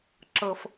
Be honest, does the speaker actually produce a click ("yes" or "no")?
yes